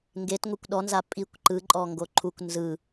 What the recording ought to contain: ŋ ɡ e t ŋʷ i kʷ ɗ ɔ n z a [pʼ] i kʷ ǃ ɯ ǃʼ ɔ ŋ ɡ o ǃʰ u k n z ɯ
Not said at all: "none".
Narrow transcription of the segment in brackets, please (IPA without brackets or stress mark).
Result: pʼ